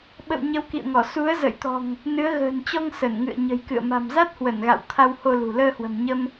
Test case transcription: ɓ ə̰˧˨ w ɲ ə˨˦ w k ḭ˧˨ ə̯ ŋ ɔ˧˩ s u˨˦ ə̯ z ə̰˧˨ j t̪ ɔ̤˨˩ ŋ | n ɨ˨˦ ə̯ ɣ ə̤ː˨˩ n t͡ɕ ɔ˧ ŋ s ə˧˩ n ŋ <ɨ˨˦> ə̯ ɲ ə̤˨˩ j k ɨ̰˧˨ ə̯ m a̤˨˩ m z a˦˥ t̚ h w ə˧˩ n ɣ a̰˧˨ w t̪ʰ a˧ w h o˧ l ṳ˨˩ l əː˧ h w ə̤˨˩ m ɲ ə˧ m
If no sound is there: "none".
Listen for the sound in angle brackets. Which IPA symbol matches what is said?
ɨ̰˧˨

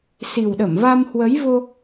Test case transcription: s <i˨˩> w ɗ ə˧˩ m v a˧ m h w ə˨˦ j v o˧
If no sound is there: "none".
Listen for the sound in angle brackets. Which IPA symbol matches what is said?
i˨˩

